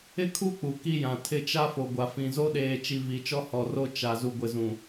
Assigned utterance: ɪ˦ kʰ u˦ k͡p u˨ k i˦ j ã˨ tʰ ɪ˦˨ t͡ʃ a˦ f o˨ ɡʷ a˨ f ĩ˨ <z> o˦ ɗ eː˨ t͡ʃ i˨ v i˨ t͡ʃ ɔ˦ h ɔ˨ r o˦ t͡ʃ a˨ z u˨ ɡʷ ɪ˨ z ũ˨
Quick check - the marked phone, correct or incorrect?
correct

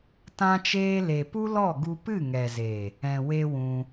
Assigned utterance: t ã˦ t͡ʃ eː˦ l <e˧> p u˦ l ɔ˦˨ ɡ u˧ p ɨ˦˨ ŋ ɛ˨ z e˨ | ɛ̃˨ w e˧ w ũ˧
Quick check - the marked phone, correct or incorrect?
incorrect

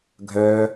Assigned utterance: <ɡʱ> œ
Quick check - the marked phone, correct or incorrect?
correct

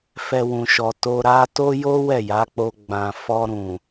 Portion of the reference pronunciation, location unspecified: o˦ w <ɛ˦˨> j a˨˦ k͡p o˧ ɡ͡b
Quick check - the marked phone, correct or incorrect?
correct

